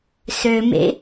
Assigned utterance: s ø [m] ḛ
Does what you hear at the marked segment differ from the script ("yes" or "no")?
no